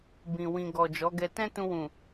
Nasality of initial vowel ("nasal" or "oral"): nasal